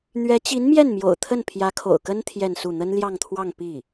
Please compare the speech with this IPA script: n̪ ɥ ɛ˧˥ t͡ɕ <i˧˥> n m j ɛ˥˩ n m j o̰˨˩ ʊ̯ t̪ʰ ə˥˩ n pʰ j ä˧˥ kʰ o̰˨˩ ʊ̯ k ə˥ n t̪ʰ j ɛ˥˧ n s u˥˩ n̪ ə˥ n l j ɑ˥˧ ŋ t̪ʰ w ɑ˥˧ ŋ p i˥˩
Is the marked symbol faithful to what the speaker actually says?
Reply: yes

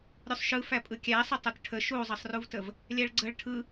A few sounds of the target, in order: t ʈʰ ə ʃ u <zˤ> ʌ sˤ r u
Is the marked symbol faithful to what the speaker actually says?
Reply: yes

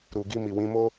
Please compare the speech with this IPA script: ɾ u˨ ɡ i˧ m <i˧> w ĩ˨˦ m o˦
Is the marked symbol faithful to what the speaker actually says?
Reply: no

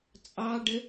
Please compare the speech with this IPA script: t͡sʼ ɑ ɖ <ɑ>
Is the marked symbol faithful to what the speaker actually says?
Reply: no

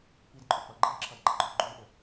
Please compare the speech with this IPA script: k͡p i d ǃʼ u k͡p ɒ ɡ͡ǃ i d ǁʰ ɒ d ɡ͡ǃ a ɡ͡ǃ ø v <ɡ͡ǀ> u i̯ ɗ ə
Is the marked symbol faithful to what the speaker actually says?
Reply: no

